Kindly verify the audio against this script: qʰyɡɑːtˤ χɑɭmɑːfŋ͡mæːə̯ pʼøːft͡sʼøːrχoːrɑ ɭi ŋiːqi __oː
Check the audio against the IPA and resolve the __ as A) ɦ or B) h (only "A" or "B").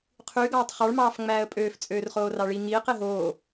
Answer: A